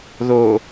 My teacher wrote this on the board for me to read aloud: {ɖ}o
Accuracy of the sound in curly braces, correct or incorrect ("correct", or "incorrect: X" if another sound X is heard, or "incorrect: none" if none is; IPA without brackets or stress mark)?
incorrect: ð